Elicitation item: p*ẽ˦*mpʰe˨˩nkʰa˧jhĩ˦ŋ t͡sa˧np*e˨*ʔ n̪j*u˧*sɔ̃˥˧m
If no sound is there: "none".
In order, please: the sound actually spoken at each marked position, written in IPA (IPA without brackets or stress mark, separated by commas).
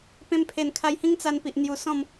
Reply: ẽ˧, i˨, u˧